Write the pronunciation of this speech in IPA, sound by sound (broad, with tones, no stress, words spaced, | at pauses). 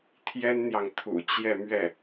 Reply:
t̪ʰjɛ˥nn̪jɑ˨ŋt̪ʰṵ˨˩ t͡ɕjɛ˥˧mɥɛ˥˩